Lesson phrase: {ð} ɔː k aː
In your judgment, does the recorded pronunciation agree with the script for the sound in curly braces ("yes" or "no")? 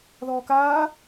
yes